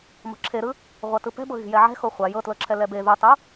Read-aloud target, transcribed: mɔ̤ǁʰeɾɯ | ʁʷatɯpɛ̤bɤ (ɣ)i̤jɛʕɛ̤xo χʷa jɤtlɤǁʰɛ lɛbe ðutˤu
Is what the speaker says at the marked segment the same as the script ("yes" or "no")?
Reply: yes